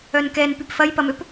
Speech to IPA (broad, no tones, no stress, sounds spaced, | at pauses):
œ n k ɛ n p y p f ɐ j p ɐ m ø p